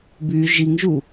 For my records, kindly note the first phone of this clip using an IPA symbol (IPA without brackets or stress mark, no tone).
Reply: b